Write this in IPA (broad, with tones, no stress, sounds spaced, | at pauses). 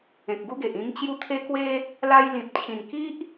ẽ˨ k̚ ɡ u˦ ɡ e˨ ʔ ĩ˧ ŋ t͡ɕ j u˦ t̪ʰ e˦ k w e˦ | l a˧ j l ĩ˨ p̚ t͡ɕʰ ĩ˨˩ n k i˦ ʔ